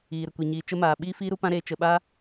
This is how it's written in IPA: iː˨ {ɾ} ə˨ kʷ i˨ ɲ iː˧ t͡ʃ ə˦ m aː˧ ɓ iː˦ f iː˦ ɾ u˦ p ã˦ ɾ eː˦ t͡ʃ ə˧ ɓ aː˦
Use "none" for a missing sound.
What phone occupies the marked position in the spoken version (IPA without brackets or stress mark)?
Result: ɾ